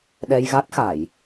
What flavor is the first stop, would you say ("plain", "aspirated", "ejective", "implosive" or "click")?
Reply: implosive